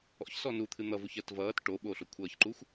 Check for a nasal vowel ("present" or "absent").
absent